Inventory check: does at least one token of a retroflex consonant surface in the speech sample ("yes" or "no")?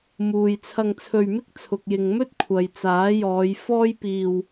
no